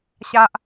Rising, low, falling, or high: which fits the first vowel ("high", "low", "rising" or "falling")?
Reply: high